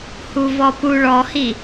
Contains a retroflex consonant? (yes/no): yes